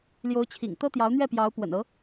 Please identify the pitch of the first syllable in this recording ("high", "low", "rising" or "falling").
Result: rising